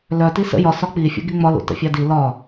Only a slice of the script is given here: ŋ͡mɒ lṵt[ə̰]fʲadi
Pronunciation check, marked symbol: correct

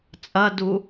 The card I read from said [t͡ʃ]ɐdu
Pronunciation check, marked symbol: incorrect: t͡sʼ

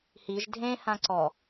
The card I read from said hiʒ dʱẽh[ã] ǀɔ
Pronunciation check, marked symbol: correct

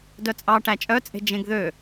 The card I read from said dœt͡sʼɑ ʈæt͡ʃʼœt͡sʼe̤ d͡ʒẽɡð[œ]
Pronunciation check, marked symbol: incorrect: ø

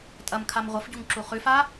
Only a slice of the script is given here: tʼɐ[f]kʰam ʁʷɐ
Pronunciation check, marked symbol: incorrect: m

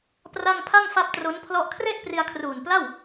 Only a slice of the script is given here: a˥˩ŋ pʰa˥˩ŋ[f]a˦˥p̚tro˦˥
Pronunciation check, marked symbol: correct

